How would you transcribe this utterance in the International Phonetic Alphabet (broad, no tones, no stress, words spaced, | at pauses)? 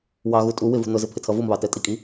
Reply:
wɑɣu tʼu wɪvṳ nʊzɪ pʰɪtʰʌvumβɑ tɛtʼikʼi